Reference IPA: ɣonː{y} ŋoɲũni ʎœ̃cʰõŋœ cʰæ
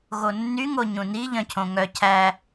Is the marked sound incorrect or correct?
correct